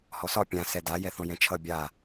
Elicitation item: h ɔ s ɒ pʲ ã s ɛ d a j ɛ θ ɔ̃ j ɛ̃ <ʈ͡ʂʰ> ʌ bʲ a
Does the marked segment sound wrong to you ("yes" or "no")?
yes